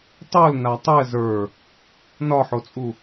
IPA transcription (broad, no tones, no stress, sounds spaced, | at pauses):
tˤ o l n a tˤ ɛ z ə˞ | n ɒ ħ o t͡sʼ u